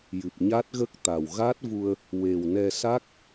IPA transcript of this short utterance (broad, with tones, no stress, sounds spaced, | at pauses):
j ɨ˨˩ p̚ ɲ a˦˥ t̚ ɣ ə˦˥ k̚ t̪ a˨˩ w ɣ a˦˥ t̚ v u˧ ə̯ | w e˨˩ w n ɛ˧ s a˦˥ k̚